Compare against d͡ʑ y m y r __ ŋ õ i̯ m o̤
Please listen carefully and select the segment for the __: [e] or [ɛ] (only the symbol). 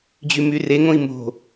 e